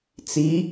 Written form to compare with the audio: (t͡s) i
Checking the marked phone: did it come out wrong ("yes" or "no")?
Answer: no